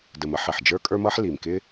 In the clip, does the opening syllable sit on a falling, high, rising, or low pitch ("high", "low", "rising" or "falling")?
low